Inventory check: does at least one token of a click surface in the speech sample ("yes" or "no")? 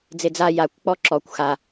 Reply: yes